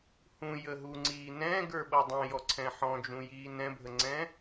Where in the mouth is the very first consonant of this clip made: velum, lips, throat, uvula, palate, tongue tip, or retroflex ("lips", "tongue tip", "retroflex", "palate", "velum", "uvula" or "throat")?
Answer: throat